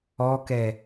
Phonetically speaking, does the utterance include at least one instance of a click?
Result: no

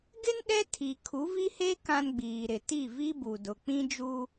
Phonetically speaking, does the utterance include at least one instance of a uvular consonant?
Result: no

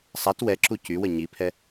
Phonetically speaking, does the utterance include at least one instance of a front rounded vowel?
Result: yes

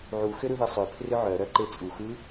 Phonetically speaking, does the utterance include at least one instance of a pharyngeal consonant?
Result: yes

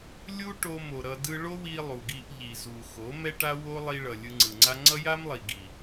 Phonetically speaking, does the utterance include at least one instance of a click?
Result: yes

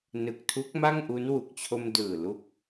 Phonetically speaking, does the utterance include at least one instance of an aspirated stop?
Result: yes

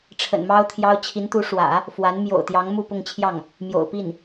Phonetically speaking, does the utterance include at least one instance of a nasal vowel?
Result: no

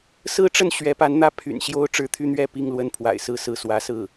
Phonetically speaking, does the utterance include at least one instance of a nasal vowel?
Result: no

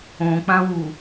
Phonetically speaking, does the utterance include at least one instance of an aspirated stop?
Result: no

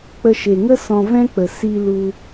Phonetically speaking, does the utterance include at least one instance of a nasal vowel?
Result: yes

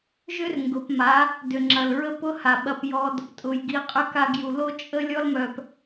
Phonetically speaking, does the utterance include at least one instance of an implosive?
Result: yes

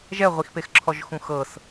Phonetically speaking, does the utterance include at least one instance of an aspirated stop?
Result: yes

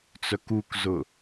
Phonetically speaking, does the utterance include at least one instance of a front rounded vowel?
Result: yes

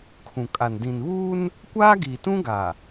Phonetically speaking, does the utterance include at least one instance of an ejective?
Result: yes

